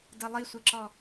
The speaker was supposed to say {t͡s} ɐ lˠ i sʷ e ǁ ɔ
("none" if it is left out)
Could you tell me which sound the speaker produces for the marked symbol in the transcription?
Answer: d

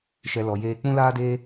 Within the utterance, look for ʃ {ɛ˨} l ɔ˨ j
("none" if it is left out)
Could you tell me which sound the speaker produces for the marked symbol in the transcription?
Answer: ɛ˨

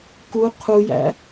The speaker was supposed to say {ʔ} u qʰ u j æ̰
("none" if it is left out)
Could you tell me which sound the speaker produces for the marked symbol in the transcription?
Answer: k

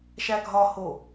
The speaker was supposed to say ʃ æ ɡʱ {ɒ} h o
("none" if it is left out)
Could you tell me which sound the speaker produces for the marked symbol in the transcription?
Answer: ɒ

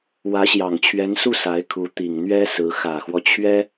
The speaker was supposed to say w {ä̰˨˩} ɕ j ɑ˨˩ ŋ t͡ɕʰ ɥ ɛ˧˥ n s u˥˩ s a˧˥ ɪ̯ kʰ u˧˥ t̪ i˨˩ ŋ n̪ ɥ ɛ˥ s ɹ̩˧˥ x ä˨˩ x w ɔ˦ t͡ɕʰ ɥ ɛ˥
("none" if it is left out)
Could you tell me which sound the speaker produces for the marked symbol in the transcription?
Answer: ä˧˥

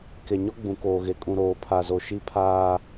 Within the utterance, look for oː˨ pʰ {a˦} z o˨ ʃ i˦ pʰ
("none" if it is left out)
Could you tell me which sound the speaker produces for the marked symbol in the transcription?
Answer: a˨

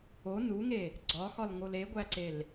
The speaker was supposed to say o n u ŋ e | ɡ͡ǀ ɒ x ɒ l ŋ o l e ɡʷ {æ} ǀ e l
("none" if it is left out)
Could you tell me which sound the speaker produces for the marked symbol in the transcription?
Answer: æ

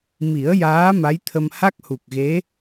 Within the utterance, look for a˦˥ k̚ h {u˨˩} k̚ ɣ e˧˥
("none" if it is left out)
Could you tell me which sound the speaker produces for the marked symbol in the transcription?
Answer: u˨˩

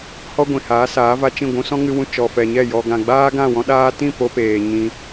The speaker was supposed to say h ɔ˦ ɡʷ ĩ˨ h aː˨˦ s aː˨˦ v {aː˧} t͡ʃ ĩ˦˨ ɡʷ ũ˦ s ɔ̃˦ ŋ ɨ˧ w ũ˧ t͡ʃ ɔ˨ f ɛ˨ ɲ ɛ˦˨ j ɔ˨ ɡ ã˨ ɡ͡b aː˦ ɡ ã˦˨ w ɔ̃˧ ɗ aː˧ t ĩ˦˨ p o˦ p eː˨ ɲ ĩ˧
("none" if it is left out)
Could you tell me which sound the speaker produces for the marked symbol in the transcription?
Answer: a˧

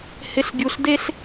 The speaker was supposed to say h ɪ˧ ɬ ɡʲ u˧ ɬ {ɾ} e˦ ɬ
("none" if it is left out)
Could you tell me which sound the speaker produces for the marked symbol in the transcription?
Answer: d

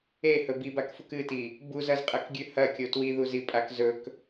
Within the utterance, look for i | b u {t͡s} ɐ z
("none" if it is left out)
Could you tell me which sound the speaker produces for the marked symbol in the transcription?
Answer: z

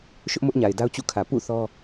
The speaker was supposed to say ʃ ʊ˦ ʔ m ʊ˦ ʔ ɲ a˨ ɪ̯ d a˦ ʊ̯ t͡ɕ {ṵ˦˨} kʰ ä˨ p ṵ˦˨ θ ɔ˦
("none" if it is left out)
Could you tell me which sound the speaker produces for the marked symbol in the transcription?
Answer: ṵ˦˨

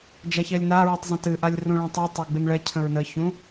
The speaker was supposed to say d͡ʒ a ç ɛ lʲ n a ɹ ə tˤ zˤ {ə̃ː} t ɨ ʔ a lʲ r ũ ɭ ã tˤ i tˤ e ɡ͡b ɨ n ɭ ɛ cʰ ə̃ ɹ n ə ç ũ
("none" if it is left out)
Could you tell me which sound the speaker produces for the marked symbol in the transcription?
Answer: ə̃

